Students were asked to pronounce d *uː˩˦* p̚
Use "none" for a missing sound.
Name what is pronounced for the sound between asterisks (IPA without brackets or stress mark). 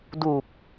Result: uː˨˩